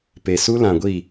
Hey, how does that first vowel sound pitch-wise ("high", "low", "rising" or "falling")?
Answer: low